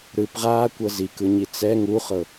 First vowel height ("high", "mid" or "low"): high